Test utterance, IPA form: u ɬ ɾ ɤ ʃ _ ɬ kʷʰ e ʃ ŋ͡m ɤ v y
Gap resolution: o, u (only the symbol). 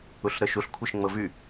u